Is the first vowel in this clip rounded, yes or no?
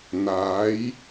no